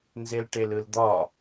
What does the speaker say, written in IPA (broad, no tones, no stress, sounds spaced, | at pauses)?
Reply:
n z e l ʈ e l ɯ l d̪ ɒ